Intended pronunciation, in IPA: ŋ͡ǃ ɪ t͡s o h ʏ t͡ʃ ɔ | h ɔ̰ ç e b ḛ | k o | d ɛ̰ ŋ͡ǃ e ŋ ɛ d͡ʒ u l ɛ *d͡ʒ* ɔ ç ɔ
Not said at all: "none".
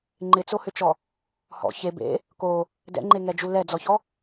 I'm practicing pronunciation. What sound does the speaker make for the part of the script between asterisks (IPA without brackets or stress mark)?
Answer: d͡z